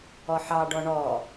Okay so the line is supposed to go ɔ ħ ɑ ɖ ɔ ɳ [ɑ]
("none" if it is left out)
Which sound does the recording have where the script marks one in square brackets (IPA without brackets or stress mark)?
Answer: ɔ